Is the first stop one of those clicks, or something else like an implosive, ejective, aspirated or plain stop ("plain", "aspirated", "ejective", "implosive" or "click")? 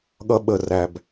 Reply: implosive